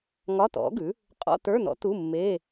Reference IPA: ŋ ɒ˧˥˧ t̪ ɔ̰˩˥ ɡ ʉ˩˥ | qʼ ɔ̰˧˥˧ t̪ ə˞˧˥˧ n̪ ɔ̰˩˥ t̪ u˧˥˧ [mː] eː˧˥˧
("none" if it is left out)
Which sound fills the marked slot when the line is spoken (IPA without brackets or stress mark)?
mː